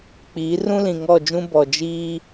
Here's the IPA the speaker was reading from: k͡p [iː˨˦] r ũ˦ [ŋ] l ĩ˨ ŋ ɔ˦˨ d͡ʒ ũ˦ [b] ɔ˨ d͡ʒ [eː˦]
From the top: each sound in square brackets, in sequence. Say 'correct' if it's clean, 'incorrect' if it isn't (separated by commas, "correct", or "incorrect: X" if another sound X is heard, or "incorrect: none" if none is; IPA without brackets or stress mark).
correct, incorrect: none, correct, incorrect: iː˦